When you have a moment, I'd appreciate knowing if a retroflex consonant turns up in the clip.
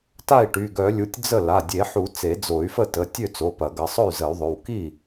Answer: yes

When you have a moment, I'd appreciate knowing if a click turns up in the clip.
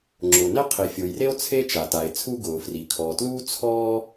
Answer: yes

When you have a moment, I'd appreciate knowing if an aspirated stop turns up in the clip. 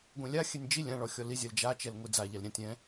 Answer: no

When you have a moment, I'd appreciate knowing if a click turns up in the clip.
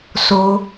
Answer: no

